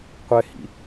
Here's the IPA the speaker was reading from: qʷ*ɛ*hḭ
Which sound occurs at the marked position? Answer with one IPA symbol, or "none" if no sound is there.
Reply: ɛ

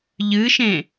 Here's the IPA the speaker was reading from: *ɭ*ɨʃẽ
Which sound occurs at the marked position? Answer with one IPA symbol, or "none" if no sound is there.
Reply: ʎ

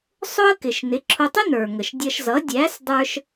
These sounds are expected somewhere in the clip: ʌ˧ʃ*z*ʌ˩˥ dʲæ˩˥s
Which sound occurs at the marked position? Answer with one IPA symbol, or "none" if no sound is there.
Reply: z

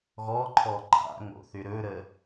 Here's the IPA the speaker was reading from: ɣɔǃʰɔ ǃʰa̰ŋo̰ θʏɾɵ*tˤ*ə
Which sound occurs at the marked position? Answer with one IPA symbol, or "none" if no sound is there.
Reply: ɾ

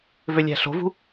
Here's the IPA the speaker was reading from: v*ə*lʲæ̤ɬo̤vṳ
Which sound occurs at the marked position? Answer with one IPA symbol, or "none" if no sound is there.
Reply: ø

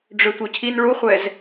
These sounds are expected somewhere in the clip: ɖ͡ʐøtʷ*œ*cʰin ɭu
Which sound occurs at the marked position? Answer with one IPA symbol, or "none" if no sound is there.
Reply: œ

